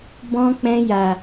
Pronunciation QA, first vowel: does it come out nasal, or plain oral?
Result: nasal